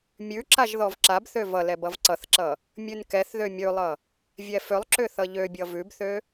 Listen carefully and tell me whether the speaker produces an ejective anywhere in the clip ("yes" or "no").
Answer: no